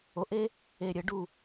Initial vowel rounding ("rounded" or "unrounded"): rounded